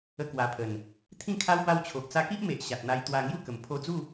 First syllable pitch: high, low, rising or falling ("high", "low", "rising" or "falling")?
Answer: high